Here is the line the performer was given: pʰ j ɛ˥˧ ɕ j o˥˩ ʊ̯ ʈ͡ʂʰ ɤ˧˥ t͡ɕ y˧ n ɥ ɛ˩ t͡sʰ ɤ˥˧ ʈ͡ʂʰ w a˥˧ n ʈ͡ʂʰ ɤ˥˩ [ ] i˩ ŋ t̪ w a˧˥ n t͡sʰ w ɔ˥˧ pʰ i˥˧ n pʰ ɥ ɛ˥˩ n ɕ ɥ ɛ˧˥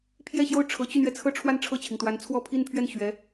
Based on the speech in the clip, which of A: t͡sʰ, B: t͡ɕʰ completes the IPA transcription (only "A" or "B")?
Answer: B